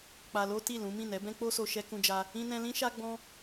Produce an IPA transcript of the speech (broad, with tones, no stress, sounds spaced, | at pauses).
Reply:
k͡p a˧ l o˦ t i˦˨ l ũ˨˦ m ĩ˦˨ n ɛ˨˦ b ɛ̃˦ k͡p o˦ s o˧ ʃ ɛ˦ k ũ˦ d͡ʒ a˦ | ĩ˦ n ɛ̃˦ l ĩ˦ ʃ a˦ ɡ͡b ɔ̃˦